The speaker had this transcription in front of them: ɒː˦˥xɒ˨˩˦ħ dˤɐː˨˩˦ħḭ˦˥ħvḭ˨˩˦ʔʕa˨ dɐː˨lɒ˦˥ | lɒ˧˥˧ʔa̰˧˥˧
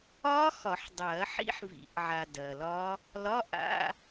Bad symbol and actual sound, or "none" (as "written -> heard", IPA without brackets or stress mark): none